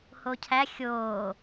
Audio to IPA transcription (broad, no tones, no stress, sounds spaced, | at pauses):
h o cʰ æ xʲ oː